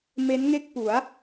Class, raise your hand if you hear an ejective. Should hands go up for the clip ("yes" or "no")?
no